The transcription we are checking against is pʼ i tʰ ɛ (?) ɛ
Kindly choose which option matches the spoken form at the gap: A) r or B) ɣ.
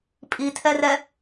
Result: A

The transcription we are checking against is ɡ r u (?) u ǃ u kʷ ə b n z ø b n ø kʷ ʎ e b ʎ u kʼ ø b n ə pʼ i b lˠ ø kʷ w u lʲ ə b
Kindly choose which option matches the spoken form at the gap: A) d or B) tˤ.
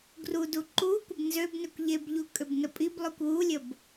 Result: A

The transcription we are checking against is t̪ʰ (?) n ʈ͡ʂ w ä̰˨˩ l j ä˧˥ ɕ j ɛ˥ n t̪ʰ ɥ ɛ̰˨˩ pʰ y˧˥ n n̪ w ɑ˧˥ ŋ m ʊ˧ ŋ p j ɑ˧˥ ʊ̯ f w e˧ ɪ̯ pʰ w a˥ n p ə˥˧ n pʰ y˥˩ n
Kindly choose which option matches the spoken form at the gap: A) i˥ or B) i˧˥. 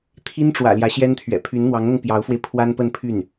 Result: A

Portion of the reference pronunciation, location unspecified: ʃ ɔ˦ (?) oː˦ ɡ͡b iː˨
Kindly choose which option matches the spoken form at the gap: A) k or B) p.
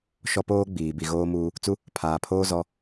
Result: B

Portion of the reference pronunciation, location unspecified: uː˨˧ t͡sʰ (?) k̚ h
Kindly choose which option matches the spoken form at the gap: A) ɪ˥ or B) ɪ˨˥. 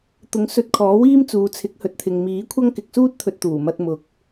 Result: B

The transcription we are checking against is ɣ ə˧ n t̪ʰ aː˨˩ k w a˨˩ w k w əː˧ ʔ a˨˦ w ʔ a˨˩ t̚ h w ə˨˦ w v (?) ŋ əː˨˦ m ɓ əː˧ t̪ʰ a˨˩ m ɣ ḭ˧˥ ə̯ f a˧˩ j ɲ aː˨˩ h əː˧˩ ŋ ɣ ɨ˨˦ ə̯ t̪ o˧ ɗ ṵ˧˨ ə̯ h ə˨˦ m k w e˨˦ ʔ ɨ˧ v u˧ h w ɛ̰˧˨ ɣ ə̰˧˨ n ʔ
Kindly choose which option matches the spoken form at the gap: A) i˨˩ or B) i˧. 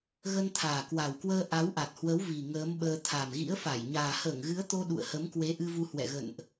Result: A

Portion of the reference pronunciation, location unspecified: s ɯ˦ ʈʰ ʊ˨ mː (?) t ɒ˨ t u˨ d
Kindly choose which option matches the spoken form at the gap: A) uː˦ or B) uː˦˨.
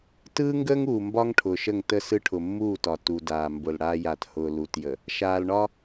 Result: B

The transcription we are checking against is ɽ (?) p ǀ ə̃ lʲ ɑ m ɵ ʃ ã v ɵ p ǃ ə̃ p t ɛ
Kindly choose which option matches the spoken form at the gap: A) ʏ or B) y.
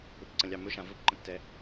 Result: A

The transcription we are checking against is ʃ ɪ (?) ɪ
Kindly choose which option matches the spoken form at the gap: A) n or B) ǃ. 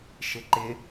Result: B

